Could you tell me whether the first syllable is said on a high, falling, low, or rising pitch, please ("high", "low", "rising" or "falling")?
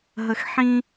low